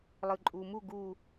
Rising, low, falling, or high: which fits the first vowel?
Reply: low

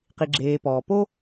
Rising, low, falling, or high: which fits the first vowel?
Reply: low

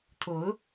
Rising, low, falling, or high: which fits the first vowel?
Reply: rising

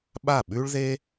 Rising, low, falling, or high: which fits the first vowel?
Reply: falling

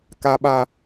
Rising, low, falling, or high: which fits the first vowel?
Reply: high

